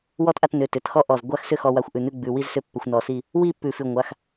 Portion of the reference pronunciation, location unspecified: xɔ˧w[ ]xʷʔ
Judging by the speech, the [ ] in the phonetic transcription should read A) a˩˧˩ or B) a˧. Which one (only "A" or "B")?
B